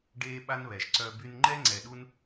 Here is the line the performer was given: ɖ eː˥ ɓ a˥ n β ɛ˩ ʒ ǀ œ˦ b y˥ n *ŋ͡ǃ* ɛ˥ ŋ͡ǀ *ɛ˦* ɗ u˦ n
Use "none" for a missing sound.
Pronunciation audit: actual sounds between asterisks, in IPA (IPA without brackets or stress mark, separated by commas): ŋ͡ǃ, ɛ˨